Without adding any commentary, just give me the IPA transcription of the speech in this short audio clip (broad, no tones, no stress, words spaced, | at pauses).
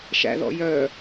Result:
ʃæ̰ðɔ̰ jœ